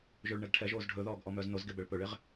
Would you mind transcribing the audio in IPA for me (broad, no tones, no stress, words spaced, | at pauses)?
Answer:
ʒɵɭ ɳɛɡʈʰɛʒoːz ɖʱɵðɔːɡ ʔɔmœːznozɡe bɛɭpɵɭeʁ